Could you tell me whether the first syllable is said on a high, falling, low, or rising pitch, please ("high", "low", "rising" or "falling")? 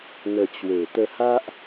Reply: low